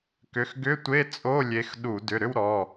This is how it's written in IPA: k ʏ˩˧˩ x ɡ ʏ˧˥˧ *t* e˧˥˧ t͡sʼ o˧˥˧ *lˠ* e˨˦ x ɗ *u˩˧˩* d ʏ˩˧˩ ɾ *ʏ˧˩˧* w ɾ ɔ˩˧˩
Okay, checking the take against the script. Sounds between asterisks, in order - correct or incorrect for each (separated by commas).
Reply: incorrect, incorrect, incorrect, incorrect